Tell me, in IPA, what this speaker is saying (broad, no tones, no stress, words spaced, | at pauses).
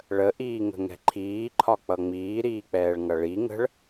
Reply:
ɭəʔiːŋə̤ŋɛ̤ ǃʰiːǃʰɒk͡pʌ ŋ͡miːɾiːk͡pɛːɭŋʌ ɭi ŋə̤ɭ